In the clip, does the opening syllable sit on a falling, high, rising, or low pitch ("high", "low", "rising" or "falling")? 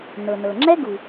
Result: low